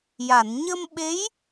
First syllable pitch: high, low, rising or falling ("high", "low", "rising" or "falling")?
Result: low